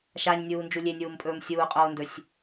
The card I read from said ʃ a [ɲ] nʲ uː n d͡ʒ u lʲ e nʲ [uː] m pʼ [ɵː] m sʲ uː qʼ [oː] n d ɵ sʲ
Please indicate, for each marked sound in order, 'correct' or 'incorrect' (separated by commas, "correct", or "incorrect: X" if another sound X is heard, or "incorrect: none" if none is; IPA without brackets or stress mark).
correct, correct, correct, correct